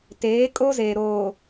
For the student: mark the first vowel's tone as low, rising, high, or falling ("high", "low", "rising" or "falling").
rising